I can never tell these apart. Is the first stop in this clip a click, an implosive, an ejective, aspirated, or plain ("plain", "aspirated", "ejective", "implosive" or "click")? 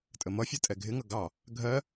ejective